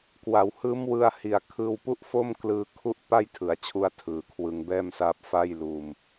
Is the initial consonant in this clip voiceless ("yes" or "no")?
yes